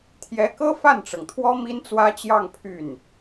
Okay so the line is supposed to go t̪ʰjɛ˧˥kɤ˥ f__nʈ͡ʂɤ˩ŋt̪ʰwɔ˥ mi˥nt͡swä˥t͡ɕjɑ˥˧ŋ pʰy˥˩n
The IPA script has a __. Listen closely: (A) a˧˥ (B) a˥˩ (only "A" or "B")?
B